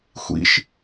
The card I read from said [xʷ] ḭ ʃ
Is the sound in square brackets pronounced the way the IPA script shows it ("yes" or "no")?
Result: yes